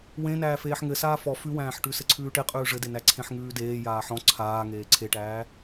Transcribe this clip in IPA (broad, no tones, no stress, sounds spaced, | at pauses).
w ẽ n æː f eː ħ ŋ ɘ s aː f ɔ f ʉ w æ̃ː ħ ʈ ʉ s ɘ ǀʰ ʉː ʈ e qʼ ʉː ʐ ɘ d e n æ ǀʰ ẽ ħ ŋ ʉː d eː j aː ħ ɔ̃ ǀʰ aː ŋ eː ǀʰ e ʈ æː